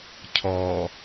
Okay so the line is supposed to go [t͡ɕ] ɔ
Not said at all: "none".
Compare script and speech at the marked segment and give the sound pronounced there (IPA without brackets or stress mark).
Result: cʰ